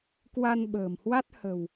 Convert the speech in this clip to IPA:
k w a˧ n ɓ ə̤ː˨˩ m h w a˦˥ t̚ h ə̤˨˩ w

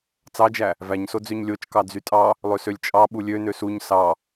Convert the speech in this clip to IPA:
t͡s ɑ d͡ʒ æ | v æ ɲ s o d͡z ø ɲ lʲ o t͡ʃ k ɑ d͡z y tʼ ɑ | lˠ ø s ø lʲ t͡ʃʼ ɑ ɓ u lʲ ø n ø s u ɲ s ɑ

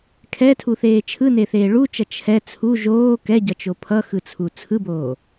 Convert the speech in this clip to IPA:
kʰ ɛ tʰ u θ eː t͡ʃʰ ɯ n e θ eː ɭ u t͡ʃ ʌ t͡ʃʰ ɛ t͡sʰ u ʒ oː k ɛ ɟ ʌ t͡ʃ o pʰ ʌ x ɯ t͡sʰ u t͡sʰ ɯ b oː

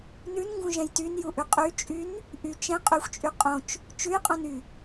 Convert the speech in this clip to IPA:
n ʉ n ŋ ɡ ũ ʒ ɛ̃ j t y n j u ʔ ʉ qʼ y t͡ʃʼ y n | ʔ y t͡ʃ ɛ̃ qʼ y xʷ t͡ʃʼ y qʼ õ t͡ʃ | t͡ʃ ʉ j qʼ õ n y

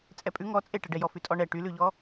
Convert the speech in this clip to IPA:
t͡sʼ ɛ pʼ ʉ ŋ ɔ t͡sʼ e ʈ ɛ ɖ ɛ j ɔ f ʉ tʼ ɔ ɳ ɛ ʈ y l ʉ ʎ ɔ

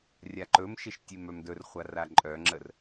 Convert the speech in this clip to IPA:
rʲ a ǃ ɵ m ʃ e ʃ tʲ e m œ m d ɵ r χʷ a r a ǃʼ œ ŋ͡ǁ ə r

